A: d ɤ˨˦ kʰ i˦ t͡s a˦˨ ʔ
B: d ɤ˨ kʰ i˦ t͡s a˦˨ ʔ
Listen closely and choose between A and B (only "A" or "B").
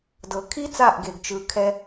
B